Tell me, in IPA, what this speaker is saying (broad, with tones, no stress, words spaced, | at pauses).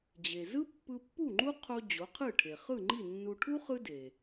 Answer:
d͡ʑe˩zɯ˥ pːɯ˧pːu˥˩ŋ͡ǃu˥ qʰo˧ d͡ʑo˩˥qʰɯ˥˩ʈʰe˩ χɯ˥˩ŋ͡ǃi˥˩nːu˧ ʈʰu˥ χɯ˥de˩